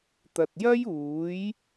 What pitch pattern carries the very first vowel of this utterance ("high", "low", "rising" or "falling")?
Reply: low